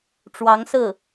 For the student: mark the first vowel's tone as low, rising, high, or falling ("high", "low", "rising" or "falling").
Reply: rising